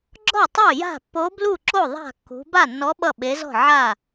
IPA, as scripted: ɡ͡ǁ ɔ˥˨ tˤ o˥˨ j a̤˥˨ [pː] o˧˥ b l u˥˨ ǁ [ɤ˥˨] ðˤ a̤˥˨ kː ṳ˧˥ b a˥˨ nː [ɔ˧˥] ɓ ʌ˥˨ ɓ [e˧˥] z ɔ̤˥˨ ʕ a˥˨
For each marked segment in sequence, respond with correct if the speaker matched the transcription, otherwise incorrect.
correct, incorrect, correct, correct

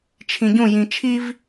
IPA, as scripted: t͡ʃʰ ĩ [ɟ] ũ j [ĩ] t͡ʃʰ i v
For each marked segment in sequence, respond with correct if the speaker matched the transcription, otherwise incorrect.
correct, correct

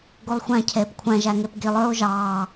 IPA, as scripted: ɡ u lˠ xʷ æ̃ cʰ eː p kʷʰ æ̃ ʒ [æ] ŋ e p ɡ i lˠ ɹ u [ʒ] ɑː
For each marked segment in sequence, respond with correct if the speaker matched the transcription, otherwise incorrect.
correct, correct

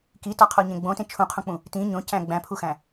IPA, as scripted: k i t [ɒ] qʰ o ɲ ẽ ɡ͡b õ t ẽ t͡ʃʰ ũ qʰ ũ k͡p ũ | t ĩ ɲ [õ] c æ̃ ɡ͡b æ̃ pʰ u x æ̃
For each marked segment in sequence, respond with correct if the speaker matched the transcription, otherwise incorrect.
correct, correct

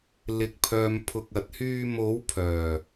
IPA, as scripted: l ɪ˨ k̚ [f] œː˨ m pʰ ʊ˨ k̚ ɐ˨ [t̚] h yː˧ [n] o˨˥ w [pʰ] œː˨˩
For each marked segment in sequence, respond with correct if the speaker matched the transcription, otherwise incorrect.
incorrect, correct, incorrect, correct

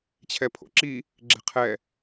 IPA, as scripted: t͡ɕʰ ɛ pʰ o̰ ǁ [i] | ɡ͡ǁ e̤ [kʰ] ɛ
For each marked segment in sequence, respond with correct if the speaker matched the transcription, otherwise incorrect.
correct, incorrect

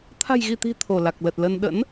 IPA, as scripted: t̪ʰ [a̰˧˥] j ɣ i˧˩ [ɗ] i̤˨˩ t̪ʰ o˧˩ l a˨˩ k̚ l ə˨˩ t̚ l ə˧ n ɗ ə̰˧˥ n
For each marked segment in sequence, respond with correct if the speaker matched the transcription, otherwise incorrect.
incorrect, incorrect

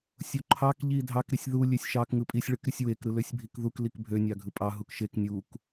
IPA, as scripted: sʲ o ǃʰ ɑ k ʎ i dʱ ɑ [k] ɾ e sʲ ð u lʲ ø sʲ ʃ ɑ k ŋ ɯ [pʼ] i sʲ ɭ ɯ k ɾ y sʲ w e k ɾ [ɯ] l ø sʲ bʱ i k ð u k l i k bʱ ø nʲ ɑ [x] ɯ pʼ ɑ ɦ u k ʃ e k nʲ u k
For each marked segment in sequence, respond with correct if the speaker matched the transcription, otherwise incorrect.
correct, correct, correct, incorrect

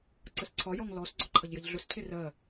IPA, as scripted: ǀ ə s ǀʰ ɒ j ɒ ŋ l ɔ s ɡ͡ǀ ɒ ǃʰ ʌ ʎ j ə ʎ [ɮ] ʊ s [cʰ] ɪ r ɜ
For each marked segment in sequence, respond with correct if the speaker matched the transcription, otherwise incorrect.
correct, correct

